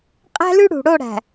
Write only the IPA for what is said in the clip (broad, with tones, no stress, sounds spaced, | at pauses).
qʼ æ̤˦ l ʉ˦ ɽ ṳ˨ ɽ o˦˨ ɽ æ̤˨